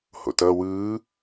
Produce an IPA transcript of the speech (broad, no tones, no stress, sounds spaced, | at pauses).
h o̰ t ʌ w ɯː